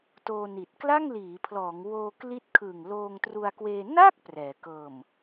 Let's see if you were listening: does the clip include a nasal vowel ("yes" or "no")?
no